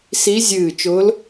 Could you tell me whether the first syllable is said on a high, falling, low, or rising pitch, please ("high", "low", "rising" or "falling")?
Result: rising